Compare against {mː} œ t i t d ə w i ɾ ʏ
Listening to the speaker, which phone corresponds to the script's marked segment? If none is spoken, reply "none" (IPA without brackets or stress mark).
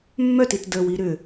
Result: mː